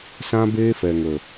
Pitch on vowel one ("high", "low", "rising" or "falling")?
high